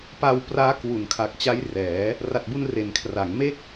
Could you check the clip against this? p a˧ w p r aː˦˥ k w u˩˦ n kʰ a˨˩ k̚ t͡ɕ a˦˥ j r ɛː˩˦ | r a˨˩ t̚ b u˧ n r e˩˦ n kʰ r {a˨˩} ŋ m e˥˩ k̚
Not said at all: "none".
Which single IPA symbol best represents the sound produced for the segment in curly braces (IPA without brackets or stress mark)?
a˩˦